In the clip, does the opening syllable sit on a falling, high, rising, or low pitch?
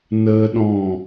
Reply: high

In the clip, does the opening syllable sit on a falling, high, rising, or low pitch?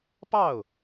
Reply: falling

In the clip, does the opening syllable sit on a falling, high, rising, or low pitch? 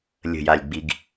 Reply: low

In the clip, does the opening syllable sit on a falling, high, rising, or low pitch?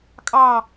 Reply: falling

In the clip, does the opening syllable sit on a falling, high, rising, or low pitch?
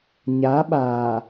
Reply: rising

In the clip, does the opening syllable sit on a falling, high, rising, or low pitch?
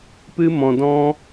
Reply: high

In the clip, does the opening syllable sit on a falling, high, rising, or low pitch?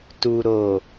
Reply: low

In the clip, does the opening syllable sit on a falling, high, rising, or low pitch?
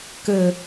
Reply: low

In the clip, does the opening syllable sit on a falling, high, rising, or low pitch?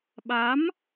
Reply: rising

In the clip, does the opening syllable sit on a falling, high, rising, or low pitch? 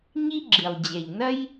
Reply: high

